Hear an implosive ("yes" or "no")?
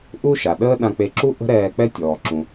yes